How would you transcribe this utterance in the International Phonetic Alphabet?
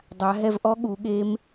dˤ a˩˧ ɦ ɛ˧ v ʔ ɔ˧˥ ɠ u˩˧ ɠ e˧˥ m

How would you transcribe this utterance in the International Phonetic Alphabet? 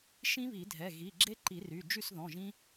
ʃ ĩ˦˥ β i˨˩˦ dʱ ɛ˩˧˩ ɣ i˩˧˩ ɡ͡ǁ e˦˥ ǃ i˨˩˦ r y˩˧˩ d͡ʒ y˥˨ s ð ɔ̃˩˧˩ ʒ ĩ˦˥

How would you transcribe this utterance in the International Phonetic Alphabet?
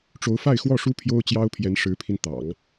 ʈ͡ʂ o˧˥ ʊ̯ f a˥˧ ɪ̯ x w ɔ˥˩ ʂ u˥ pʰ j o˥ ʊ̯ t͡ɕ j ɑ˥ ʊ̯ pʰ j ɛ˧˥ n ʂ ɻ̩˧˥ pʰ i˧ n t̪ ɑ̰˨˩˦ ŋ

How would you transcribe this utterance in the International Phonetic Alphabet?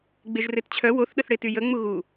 ɡ͡b e ʒ r e t t͡ɕʰ œ w o θ ɗ ə θ ɽ e t y j ə ŋ͡m u ɣ u

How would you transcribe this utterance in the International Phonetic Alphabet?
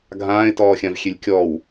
ɡʱ ãː ɪ̯ t ɔː xʲ ã v xʲ e lʲ kʲ ɔː w

